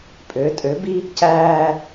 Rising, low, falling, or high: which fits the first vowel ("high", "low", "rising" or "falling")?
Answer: rising